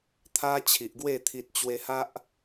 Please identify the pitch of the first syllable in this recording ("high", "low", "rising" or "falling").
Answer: high